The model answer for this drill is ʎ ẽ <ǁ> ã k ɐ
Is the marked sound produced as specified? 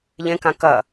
no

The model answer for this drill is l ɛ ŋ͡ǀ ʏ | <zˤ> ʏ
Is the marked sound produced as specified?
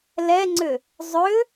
yes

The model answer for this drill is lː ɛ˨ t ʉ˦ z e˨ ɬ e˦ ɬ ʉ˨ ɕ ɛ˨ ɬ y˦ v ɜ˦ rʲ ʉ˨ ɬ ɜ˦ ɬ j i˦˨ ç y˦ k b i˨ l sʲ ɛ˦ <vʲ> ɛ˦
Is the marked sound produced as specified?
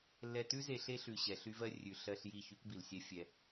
no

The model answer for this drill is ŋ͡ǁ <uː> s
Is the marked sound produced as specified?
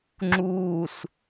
yes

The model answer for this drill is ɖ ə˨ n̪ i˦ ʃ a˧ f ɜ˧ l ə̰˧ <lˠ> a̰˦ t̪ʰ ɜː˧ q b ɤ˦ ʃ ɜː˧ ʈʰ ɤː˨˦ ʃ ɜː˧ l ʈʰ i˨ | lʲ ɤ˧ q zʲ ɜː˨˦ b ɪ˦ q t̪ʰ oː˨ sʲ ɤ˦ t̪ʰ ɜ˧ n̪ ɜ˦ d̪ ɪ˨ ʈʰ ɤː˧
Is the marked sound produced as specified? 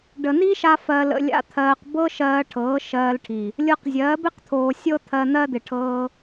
no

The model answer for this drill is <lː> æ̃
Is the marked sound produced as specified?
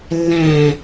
yes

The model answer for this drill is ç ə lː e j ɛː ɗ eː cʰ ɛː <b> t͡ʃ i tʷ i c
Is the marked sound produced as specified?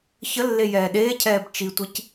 yes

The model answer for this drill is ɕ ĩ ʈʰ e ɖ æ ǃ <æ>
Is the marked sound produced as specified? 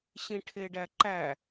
yes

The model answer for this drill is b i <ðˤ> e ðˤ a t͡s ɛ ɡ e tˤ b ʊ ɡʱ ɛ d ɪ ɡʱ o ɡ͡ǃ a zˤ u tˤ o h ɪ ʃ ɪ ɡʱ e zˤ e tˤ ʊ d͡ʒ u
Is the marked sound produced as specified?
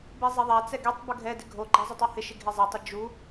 no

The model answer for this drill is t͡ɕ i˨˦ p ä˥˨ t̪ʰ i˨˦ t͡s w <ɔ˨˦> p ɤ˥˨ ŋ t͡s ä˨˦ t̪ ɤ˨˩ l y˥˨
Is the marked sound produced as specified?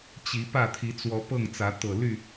yes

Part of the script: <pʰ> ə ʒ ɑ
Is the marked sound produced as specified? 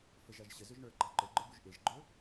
no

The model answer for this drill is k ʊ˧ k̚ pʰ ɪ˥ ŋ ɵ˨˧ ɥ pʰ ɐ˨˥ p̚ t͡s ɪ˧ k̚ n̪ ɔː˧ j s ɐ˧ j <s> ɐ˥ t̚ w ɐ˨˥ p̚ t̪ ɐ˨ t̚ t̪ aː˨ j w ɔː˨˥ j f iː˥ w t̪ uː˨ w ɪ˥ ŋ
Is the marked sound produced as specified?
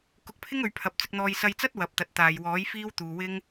no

